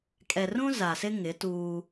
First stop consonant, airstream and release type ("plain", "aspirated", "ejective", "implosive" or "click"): ejective